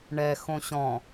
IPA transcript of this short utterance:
ɳ ɛ x õ ɕ ɔ̃

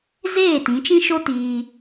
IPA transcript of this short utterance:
z eː˦˨ t ĩ˨˦ t͡ʃ ĩ˦ ʃ o˦ t iː˧

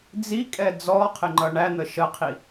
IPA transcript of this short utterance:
d͡z i kʼ ɛ d͡z ɔ qʰ ɪ ŋ͡ǃ ʌ ɳ æ n̪ ə ʃ ə qʰ i

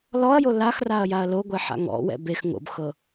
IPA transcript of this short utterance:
l ɔ ɐ̯ j o l a x r a ɐ̯ j a ɐ̯ l o ɡʷ e ħ a̰ ŋ ɔ̰ w ɛ̰ b e x ŋ o̰ b x ɤ

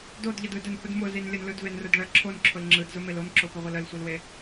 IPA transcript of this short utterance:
d o d ʎ ə d ɯ d ə n h ʊ d m ʊ z i n lʲ ə n l ɯ d v e n r ʊ d ɭ ə ǁʰ o n ǁʰ ʊ l ŋ͡ǁ ɯ d z ʊ m e l o n ǁ ʊ p ə ʁʷ ɯ l ə l sʷ ɯ l w e

